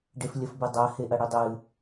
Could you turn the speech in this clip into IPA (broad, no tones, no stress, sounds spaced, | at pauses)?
ɖ e f lʲ ɐ f b ɨ dˤ a h e ʔ ɐ ɽ i dˤ ɨ